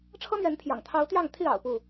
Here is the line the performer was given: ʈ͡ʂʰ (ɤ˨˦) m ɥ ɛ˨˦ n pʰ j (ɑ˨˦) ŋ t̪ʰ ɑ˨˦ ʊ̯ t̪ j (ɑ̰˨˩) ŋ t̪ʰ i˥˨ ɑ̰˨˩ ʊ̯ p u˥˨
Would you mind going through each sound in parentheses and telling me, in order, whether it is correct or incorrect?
incorrect, incorrect, incorrect

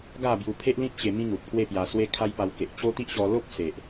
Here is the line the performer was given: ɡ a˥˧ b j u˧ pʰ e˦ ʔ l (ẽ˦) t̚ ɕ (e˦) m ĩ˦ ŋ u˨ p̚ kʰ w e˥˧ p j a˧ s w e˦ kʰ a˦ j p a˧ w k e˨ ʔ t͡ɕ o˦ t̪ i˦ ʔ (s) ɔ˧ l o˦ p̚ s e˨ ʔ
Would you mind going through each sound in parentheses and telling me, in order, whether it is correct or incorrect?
incorrect, incorrect, incorrect

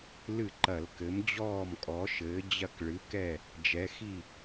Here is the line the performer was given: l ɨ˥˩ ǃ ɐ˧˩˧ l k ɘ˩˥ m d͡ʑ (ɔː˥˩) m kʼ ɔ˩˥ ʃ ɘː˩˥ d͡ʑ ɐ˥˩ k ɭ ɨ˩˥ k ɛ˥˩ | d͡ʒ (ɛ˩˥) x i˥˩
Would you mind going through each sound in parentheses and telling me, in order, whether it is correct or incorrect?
correct, correct

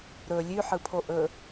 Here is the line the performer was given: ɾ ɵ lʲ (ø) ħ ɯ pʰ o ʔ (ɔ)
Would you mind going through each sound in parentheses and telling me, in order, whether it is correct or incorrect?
incorrect, incorrect

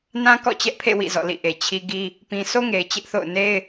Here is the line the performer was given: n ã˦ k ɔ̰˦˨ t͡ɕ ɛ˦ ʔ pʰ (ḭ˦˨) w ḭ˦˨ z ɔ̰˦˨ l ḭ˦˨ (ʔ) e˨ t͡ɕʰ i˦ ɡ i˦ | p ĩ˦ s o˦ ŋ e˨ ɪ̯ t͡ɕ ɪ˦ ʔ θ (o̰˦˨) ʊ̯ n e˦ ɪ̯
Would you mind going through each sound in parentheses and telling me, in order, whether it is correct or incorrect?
incorrect, correct, correct

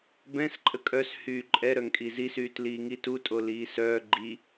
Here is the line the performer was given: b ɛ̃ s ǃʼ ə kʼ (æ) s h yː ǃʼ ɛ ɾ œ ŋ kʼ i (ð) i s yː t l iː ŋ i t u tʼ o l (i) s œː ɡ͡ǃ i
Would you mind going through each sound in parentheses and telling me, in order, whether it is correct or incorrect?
incorrect, incorrect, incorrect

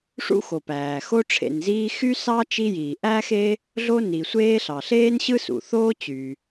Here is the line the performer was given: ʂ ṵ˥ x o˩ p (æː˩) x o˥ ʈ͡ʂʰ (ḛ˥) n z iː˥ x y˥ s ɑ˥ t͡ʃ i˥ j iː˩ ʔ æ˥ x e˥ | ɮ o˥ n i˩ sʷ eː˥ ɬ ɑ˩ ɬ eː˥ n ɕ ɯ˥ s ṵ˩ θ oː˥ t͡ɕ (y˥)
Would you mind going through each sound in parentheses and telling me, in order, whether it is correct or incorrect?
correct, incorrect, incorrect

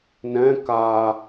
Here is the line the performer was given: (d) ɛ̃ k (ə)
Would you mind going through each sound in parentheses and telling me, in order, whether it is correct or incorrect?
incorrect, incorrect

